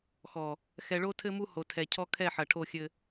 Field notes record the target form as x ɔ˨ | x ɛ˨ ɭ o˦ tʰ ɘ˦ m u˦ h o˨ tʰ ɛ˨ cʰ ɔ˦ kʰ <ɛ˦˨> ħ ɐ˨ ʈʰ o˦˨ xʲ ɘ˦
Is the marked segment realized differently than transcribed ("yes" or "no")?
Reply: no